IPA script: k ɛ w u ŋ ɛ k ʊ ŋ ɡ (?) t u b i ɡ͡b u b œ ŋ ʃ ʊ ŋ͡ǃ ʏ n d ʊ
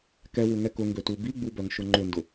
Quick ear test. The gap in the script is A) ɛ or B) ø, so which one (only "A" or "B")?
B